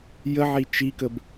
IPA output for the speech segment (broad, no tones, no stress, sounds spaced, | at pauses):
j ə ʕ i t͡ʃ i k ə b